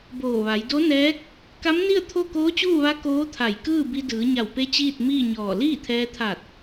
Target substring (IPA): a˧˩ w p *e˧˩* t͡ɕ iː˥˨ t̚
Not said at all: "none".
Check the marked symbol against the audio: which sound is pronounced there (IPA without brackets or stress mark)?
e˧˥